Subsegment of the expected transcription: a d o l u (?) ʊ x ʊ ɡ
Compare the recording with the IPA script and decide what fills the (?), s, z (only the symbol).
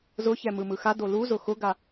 z